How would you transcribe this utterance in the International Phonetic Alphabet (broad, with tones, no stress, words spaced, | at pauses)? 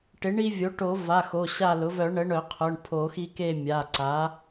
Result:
ʈɪ˩˥ɳi˦vʲo˩˥ ʈo˨˩˦va˩˧˩ xo˩˧˩ɕa˦˨lʊ˩˥ vœ˨˩˦ɳə˩˥ ɳœ˨˩˦qʰʊ˩˧˩ɳpʰo˨˩˦xi˦ ke˦˨mʲa˩˧˩ ǀa˩˥